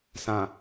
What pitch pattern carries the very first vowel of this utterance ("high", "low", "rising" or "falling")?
low